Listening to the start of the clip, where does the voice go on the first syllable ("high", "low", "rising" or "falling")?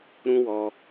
high